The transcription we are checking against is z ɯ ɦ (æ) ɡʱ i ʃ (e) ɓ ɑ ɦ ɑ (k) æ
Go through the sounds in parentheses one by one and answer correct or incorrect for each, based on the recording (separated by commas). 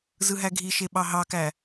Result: correct, correct, correct